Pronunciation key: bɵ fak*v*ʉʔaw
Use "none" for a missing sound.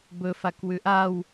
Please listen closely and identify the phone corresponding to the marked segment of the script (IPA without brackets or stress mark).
w